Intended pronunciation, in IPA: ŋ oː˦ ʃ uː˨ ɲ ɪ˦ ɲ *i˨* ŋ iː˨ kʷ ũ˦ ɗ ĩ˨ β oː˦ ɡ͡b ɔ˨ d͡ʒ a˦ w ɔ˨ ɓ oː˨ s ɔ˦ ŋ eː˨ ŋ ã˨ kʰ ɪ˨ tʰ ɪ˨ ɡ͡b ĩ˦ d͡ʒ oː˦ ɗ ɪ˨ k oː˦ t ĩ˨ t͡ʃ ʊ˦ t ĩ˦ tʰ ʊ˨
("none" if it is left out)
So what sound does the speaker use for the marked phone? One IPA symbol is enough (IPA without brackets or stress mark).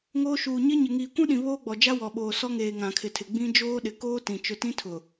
ɪ˨